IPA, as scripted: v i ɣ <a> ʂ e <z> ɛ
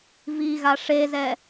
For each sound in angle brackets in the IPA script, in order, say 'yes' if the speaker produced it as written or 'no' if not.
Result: yes, yes

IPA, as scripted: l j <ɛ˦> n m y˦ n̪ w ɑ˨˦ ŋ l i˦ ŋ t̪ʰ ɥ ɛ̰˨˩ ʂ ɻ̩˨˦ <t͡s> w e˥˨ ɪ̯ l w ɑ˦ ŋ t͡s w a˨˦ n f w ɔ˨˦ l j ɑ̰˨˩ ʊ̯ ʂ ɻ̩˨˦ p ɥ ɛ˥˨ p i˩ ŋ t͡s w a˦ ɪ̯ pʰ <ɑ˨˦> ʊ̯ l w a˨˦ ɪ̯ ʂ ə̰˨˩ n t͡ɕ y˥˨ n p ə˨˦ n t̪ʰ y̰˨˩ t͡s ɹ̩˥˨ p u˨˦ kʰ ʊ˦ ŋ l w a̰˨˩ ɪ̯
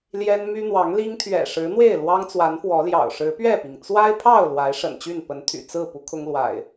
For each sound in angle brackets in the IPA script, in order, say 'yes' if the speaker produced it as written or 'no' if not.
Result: yes, no, no

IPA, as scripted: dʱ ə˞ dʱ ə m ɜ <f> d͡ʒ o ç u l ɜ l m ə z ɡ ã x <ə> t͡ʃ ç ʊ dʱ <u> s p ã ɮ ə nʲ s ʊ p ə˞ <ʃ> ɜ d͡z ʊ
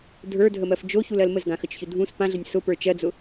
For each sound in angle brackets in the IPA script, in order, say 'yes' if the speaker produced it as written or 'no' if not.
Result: yes, yes, no, no

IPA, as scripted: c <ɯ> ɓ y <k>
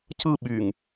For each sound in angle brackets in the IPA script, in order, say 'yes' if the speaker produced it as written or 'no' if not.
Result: yes, no

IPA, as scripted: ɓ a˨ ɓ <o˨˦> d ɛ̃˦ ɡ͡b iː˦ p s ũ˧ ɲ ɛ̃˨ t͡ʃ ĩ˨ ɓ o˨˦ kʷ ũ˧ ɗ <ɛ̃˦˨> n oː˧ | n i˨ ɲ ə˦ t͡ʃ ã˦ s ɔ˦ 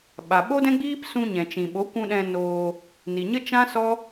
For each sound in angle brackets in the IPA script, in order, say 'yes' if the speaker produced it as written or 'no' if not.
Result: no, no

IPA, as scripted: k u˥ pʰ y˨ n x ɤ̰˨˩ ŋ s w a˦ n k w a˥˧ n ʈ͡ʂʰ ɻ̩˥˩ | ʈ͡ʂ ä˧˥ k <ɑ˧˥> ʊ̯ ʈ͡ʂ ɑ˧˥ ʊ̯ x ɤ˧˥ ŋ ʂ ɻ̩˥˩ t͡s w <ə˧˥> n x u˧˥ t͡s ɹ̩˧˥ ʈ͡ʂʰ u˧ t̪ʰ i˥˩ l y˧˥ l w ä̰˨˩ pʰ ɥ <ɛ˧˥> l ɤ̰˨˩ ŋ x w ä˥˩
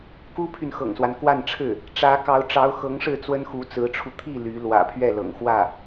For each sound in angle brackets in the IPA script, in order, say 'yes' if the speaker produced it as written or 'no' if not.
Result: yes, no, no

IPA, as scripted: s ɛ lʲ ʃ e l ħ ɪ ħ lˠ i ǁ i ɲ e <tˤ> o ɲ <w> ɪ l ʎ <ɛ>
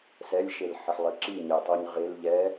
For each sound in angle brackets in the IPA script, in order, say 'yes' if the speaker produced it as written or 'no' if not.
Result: yes, no, yes

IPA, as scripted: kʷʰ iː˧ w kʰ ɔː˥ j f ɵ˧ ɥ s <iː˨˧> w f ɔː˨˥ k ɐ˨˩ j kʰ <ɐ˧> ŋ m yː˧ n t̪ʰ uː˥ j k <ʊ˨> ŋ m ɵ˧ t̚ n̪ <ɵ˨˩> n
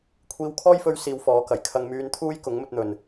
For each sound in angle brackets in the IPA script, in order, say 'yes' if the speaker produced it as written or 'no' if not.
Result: yes, yes, no, no

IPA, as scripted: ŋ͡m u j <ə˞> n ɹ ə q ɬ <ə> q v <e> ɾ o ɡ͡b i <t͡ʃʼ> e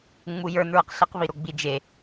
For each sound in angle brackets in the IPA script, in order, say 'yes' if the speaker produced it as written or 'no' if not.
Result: yes, yes, no, no

